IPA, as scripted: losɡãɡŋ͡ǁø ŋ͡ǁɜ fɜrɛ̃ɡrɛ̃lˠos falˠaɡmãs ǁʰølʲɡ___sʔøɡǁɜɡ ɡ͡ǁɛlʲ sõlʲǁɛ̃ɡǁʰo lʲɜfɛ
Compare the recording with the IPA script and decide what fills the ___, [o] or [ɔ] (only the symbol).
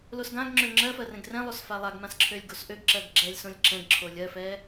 o